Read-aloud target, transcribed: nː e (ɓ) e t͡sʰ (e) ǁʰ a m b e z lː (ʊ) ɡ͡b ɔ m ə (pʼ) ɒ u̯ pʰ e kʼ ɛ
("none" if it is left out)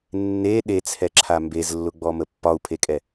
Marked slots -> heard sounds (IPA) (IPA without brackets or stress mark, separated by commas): ɗ, ɛ, ʊ, pː